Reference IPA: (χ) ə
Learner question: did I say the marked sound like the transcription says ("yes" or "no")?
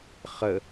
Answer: yes